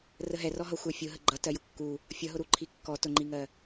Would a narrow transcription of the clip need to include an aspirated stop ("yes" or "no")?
yes